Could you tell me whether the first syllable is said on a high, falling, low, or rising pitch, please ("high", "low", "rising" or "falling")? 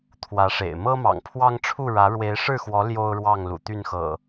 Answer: rising